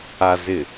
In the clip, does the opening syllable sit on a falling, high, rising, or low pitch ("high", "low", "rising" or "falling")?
low